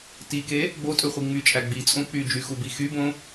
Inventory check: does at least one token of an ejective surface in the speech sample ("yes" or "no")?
yes